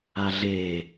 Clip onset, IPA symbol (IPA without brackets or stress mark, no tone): a